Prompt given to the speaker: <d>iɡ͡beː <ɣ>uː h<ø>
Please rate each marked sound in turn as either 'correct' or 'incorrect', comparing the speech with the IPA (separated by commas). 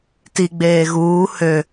incorrect, correct, correct